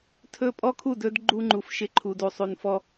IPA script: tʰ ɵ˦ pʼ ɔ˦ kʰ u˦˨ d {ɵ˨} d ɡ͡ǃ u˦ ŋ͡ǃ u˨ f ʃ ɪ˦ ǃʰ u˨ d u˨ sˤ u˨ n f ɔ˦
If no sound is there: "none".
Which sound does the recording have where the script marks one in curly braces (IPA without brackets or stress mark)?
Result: ɵ˦